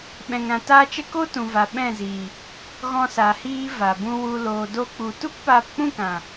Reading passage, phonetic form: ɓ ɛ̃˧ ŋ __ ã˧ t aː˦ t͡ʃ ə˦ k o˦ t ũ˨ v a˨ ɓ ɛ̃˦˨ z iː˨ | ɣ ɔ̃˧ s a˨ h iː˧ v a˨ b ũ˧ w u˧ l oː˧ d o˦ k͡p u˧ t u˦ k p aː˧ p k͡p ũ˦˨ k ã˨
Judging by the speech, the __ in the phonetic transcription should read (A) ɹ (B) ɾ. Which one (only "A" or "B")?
B